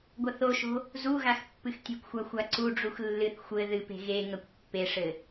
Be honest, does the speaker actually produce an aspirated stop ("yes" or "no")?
no